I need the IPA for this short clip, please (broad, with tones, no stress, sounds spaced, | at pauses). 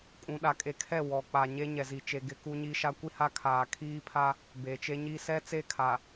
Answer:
kʼ ũ˨ ɗ a˨ kʼ e˨ kʰ ɛ˦˨ w ɔ˨ k͡p a˨ ɲ e˦ ɲ ɛ˨ z i˨ t͡ʃ e˨ ɡ ɪ˨ k u˦ ɲ i˦ ʃ a˦ kʷ i˦ h a˦ kʰ aː˨ kʰ iː˦ pʰ a˦ | b e˨ t͡ʃ e˦ ɲ i˦ s ɛ˦ t͡s e˦˨ kʰ a˨